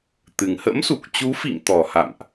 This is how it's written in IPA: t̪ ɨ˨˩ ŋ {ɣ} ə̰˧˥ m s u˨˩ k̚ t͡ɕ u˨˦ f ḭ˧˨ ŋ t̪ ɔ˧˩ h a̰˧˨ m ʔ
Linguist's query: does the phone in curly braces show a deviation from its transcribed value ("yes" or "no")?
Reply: yes